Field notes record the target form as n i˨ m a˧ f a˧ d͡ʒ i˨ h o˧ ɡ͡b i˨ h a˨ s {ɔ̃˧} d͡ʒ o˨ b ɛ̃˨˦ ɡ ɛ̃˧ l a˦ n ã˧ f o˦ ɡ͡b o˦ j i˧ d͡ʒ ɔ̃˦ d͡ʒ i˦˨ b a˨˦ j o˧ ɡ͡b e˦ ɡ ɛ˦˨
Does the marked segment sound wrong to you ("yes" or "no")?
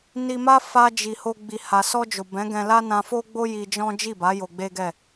yes